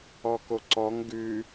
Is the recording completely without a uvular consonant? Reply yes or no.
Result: yes